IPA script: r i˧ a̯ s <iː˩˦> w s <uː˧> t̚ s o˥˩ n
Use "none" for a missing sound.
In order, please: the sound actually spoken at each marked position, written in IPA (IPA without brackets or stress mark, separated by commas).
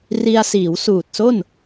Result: iː˩˦, uː˨˩